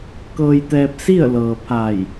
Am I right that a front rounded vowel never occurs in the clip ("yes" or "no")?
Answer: yes